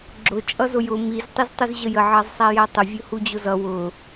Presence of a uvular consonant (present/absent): absent